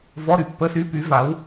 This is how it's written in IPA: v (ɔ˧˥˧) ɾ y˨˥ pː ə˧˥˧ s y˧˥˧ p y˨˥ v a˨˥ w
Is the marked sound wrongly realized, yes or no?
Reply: no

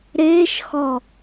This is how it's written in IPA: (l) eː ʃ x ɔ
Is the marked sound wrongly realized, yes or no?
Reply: yes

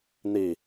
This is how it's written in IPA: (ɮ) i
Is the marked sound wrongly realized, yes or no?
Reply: yes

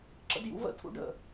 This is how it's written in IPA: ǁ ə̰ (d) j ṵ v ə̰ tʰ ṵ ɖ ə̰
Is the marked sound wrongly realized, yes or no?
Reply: no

